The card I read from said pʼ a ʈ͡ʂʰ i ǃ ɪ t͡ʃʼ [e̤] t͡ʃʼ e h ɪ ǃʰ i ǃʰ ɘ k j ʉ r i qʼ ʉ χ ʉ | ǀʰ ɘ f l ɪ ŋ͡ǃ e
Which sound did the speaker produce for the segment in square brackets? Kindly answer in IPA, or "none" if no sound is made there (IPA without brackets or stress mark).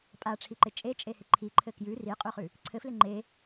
e